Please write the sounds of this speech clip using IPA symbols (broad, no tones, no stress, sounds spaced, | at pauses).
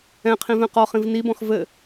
ɛ̃ qʰ ĩ v ɛ̃ q ɔ χ ĩ v n i b ɔ̃ x v ɘ